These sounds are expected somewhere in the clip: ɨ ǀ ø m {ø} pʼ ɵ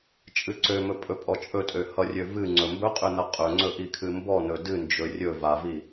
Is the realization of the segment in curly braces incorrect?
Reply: yes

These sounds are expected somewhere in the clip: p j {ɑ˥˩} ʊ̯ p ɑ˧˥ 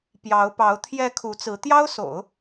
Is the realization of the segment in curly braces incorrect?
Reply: yes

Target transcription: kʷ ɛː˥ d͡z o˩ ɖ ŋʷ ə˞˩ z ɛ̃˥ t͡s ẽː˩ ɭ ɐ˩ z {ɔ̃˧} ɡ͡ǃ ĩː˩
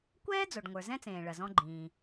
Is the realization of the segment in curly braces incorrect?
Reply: no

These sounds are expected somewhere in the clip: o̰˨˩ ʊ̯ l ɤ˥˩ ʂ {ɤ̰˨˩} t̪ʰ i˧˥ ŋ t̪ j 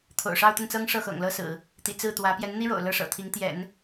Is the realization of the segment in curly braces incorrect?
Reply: no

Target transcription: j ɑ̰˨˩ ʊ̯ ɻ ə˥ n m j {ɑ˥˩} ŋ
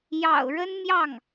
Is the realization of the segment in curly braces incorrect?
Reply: no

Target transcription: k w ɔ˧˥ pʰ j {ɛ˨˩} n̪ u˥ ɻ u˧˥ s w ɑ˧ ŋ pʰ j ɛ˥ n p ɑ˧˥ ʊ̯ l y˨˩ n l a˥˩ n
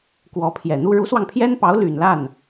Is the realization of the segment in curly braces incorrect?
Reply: no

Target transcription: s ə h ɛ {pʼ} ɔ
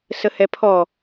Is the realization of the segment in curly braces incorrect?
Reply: yes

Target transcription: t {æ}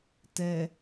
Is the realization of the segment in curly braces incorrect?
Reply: yes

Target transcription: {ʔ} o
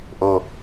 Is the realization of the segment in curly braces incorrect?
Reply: no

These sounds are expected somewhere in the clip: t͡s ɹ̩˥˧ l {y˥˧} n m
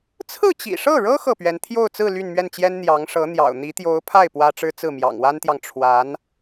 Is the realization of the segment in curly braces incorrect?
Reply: no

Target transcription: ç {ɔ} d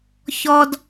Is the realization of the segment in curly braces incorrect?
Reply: no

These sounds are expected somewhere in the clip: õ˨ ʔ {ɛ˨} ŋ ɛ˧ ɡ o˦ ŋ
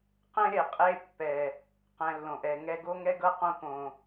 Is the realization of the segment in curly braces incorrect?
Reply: no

